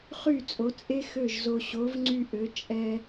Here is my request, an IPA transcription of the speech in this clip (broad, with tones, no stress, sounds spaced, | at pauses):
χ y˥˩ t͡sʼ o˩˥ t͡sʼ e˥ x ø˥˩ ʒ z o˧ ɕ o˩˥ v ŋ͡ǀ y˧ ʔ ø˩˥ t͡ʃʼ ɛ˧